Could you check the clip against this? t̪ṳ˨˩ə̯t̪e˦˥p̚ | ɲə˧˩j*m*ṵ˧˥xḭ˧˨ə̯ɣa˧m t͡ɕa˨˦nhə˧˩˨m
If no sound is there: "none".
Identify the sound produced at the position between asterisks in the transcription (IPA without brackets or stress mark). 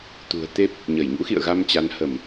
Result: ɲ